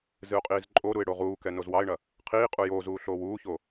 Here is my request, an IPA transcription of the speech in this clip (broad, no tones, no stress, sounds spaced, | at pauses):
z ɨ ʊ̯ qʼ iː z ǃʼ o ɾ u ɪ̯ ɽ o ʁ uː k ɛ n o z w ɑ ɪ̯ ɳ ɐ | qʰ iː qʼ u j oː z uː ɬ oː w uː ç o